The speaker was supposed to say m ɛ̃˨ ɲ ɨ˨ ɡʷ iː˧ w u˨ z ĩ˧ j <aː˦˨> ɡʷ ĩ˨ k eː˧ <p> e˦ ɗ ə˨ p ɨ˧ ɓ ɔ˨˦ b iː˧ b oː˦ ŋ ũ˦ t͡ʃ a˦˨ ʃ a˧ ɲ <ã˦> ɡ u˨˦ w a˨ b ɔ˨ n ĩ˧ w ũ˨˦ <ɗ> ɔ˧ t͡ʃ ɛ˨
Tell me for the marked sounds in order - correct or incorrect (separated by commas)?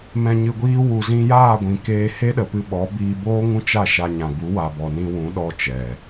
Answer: correct, incorrect, incorrect, correct